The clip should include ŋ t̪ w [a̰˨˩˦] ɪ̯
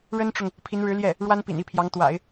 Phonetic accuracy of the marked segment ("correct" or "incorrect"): correct